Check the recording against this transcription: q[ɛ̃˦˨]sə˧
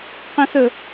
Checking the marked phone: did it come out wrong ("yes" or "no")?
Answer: yes